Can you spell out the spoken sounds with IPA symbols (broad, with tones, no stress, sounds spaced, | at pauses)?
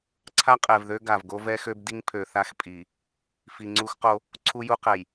ǀʰ a˦ qʼ ɛ˨ v ð ø˦ ɡ a˨ v ɡ o˦ v ɛ˦ x ø˦ b d i˦ ŋ pʰ ø˨ θ a˦ x pʼ i˨ | f i˨ ŋ͡ǀ u˦ x q o˦ | ǀʰ u˦ j u˦ q ɛ˨ j